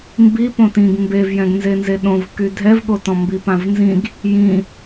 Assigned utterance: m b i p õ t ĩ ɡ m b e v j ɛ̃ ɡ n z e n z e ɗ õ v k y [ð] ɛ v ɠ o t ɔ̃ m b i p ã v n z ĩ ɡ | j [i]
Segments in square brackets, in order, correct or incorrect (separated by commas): incorrect, incorrect